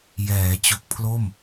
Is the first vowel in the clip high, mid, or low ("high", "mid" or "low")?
mid